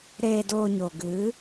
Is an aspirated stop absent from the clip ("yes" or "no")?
yes